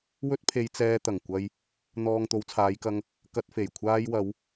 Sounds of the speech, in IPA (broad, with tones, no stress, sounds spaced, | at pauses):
w ɵ˥ t̚ pʰ e˧ j t͡s ɛː˧ t̪ ɐ˨˩ ŋ kʷ ɐ˧ j | n̪ ɔː˨ ŋ t̪ o˨˧ w t͡sʰ aː˨˧ j k ɐ˧ ŋ | k ɐ˧ t̚ f e˨˩ j kʷʰ aː˧ j w ɐ˨˧ w